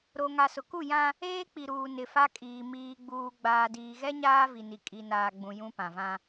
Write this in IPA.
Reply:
ɾ o˨ ŋ a˨ s ʊ˨ k u˦˨ j ã˦ | eː˦ k͡p i˨ ɾ uː˨ n ɪ˨ f a˦ kʼ iː˨ m iː˨ ɡ͡b uː˨ ɡ͡b aː˨ d iː˨ ɣ ɛ˦ ɲ aː˦ v i˨ n i˨ kʼ i˨ n aː˨ ɡ͡b ũ˨ j ũ˦ p ã˨ v ã˦

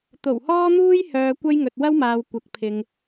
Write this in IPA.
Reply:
t̪ o˨˩ w h ɔː˥ n̪ uː˥ j h œː˨ kʷ ɐ˥ j ŋ ɵ˨ t̚ w ɐ˥ w m aː˨ w kʷ ɐ˨˥ k̚ pʰ ɪ˨ ŋ

